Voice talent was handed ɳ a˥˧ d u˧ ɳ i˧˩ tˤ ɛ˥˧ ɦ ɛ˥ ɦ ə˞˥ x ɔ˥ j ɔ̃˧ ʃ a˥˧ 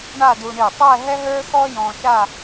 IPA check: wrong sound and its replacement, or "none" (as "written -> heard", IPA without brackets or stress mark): none